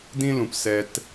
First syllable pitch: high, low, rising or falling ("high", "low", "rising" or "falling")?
high